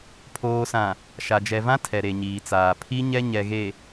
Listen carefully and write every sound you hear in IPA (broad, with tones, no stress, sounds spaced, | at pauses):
pʰ oː˨ s ã˨ | ʃ a˨ d͡ʒ ɛ˨ v ã˦ tʰ ɛ˨ ɾ e˨ ɲ iː˨ t͡s aː˨ pʰ i˦ ɲ ɛ˦ ɲ ɛ˨ ɣ e˨